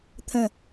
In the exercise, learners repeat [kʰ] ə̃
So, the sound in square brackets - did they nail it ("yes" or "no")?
no